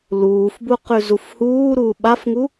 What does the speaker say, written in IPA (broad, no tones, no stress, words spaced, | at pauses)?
luːfbuqʉ zufhuː ɾuːɓafŋu